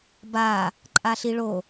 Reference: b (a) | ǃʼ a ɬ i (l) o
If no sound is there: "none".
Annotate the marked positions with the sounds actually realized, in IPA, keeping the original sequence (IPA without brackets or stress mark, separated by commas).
a, ɭ